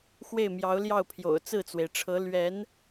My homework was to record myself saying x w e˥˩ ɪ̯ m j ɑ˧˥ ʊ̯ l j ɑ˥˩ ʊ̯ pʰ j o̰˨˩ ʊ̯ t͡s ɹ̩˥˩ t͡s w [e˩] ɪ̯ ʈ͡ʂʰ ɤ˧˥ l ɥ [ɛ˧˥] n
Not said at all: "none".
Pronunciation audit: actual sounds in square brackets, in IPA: e˩, ɛ˧˥

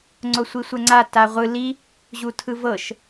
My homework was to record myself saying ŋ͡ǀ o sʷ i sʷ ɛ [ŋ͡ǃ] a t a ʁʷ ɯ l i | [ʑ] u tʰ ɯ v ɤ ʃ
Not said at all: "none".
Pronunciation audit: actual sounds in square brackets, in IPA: ŋ͡ǀ, ʑ

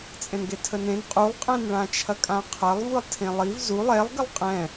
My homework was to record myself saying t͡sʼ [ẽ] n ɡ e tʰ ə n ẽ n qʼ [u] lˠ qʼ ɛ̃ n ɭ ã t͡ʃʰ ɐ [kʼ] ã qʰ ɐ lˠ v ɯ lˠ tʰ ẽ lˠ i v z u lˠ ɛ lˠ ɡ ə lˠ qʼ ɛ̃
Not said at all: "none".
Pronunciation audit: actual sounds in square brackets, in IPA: ẽ, u, kʼ

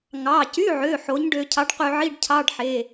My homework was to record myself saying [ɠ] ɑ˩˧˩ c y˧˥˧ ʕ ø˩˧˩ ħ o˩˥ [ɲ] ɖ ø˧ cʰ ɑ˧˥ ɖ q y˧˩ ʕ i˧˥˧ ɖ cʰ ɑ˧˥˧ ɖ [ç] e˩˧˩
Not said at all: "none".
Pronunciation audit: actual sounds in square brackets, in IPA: ŋ, ɲ, ħ

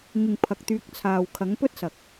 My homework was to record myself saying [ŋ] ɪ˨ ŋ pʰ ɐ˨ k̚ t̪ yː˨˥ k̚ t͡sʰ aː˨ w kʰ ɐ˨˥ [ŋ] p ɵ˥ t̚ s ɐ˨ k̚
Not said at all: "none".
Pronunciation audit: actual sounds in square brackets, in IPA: ŋ, ŋ

